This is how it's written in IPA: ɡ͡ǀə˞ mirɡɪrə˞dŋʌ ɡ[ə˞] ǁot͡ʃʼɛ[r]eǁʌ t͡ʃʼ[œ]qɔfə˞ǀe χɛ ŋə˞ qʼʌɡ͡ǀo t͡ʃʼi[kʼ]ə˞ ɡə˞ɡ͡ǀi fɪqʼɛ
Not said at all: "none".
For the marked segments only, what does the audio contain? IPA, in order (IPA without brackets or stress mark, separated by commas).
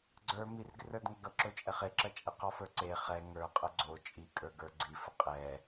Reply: ʌ, χ, ɛ, kʼ